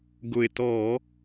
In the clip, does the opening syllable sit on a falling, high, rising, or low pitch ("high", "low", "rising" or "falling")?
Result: low